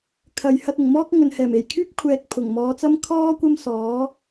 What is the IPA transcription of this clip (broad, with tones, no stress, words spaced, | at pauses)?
kʰɐ˨j hɐ˧t̚ʊ˨˩ŋmɔː˥k̚ ŋɵ˨nhɛː˨˩m e˨˩jkʰyː˥p̚ kʷʰɛː˧k̚pʰʊ˨˩ŋmɔː˨˧t͡sɐ˥m kʰɔː˥ kʷɐ˥msɔː˨˥